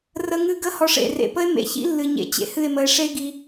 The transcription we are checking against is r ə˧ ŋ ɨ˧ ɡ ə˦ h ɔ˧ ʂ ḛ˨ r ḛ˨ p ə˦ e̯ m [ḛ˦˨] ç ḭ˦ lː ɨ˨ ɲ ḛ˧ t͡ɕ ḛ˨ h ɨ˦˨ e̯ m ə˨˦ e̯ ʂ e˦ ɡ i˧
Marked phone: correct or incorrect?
incorrect